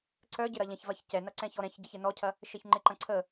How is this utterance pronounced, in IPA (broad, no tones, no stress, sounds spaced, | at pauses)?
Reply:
ǀ œ ɟ ɪ ɾ ɐ ʎ ɛ̃ ç v ɐ ç c ɛ n ɐ ǀ ɛ̃ ç ɔ ɾ ɛ̃ ç ɟ ɐ ç ɪ n ɔ cʰ ɐ | ʃ e ç ŋ͡ǃ ɪ ǃ ɐ̃ ǀʰ ə